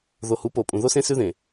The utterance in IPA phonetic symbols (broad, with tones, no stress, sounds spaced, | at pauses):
ð o˨ h u˨˦ p o˨ pʼ ũ˨ ð o˦ s ẽ˦ s ʉ˦ ð ẽ˨